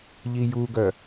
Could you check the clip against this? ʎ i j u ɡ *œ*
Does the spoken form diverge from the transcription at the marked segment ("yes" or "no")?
no